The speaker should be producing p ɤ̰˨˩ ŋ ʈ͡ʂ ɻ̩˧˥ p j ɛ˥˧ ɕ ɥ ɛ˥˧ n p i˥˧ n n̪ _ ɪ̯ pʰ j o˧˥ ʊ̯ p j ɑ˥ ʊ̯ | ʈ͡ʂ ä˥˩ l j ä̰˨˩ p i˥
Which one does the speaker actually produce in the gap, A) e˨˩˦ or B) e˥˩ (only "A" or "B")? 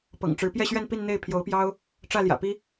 B